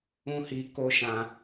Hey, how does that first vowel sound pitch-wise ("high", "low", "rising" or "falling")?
high